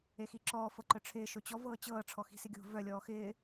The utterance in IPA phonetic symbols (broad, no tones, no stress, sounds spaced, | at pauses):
e x i ǁ ɔː f ɤ ǃ œ ʈ͡ʂʰ ɪː ʃ o t͡ɕ ɔ v ɤː t͡ɕ ɤː ʈ͡ʂʰ ɔ x i̤ s ɪ ɡʲ o̤ v œ lʲ ɔː x ɪː